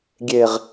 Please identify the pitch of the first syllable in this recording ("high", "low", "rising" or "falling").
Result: low